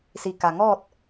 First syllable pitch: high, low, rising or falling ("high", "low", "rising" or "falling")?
low